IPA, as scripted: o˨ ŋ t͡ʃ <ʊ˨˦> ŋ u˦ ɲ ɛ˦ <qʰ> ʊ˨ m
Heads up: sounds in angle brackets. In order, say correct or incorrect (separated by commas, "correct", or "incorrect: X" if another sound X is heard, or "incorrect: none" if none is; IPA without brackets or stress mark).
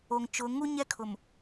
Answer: correct, incorrect: kʰ